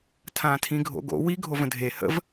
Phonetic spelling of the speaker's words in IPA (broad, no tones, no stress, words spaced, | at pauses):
tʰãːtʰĩɡʱo̰ɡo̰ wi ɡʱovə̃dʱe hə̰v